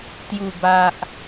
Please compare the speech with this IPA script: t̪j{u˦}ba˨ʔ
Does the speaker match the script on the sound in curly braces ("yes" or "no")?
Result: no